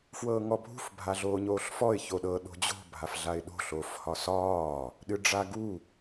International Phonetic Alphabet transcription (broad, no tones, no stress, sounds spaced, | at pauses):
f w ɤː ŋ ɔ bʱ ṳ f bʱ a ɮ oː ɲ oː ɬ f ɔ ɪ̯ ç o ɗ ɤ ɗ o̤ d͡ʑ o̤ bʱ a f ɮ a ɪ̯ ɗ o̤ ɬ oː f h ɒ s ɒː | ɗ ɨ ɖ͡ʐ a ɡ u